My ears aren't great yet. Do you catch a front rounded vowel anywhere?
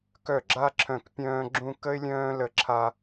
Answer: yes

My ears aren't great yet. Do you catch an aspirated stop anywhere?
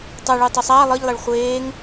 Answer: no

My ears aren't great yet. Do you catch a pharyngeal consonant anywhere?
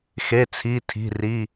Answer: no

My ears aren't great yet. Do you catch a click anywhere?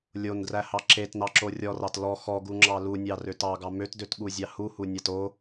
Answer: yes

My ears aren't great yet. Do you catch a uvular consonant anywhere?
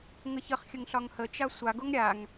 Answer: yes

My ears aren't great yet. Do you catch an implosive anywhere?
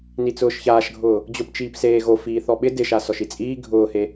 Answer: yes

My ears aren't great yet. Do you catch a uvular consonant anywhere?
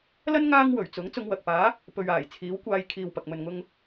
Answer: no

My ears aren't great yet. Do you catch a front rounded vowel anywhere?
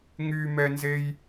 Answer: yes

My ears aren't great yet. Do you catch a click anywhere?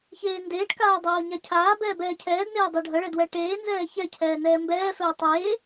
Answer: no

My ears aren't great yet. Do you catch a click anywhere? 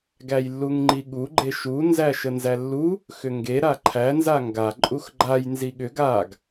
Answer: yes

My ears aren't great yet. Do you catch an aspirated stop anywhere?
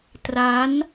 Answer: no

